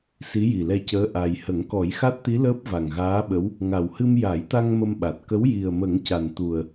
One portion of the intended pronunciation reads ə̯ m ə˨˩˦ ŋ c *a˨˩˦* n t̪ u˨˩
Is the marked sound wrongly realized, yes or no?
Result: yes